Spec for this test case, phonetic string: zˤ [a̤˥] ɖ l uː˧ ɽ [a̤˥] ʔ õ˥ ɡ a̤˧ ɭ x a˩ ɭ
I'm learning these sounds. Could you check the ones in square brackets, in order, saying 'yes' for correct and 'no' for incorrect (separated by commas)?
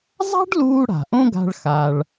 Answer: yes, no